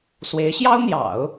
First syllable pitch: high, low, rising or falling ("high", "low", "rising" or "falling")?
rising